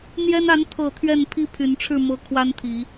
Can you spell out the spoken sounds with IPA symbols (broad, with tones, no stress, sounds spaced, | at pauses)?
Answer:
n̪ j ɛ˦ n a˨˦ n t̪ʰ ɤ˨˩ t̪ʰ ɥ ɛ˥˨ n pʰ i˦ pʰ y˨˦ n ʈ͡ʂʰ ɻ̩˥˨ m ɤ˦ kʰ w a˦ n t̪ʰ i˨˦